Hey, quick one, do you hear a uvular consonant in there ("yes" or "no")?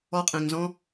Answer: yes